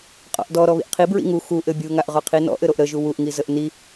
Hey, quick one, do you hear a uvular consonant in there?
yes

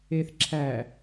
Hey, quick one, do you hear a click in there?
yes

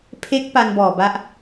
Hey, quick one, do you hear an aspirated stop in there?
yes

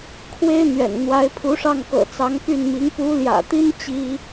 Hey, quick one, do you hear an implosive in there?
no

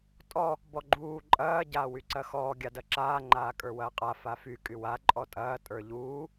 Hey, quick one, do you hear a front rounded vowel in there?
yes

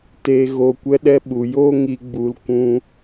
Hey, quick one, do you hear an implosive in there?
yes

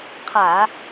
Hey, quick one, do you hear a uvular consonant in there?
yes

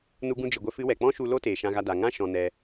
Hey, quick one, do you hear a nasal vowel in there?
yes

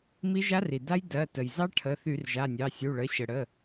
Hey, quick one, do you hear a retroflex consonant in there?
yes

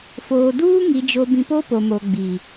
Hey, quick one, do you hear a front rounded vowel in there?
no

